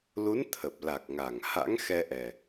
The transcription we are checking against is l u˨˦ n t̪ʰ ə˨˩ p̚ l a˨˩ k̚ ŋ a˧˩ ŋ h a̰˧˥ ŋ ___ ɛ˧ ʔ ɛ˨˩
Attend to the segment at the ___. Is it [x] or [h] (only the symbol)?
x